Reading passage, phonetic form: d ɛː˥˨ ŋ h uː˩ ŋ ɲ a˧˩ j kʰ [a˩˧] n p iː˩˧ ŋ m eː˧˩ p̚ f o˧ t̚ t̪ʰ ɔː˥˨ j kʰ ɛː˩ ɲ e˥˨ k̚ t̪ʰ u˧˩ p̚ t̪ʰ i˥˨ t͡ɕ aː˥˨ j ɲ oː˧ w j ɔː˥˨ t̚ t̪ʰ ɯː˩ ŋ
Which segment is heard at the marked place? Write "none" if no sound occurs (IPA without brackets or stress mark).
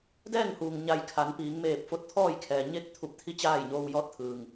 a˩˧